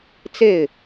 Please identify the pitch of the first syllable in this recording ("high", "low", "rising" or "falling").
falling